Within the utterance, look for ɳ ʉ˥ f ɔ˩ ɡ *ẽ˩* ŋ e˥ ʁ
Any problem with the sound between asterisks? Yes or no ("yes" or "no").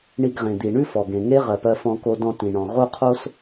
no